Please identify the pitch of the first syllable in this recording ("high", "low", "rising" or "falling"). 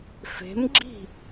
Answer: rising